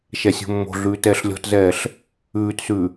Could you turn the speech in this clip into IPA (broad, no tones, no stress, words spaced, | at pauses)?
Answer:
ʃɛsʲo̤mːo̤ɮʉː tɛːɬlʲɔ̤tzɛːɬ | ʉːtsʉ